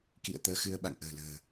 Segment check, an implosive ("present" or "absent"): present